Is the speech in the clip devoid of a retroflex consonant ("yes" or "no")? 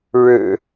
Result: no